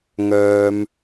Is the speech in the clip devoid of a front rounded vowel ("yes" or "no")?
no